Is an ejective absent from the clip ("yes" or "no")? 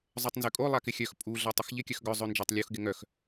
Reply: no